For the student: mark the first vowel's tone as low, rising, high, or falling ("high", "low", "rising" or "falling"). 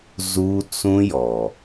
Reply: high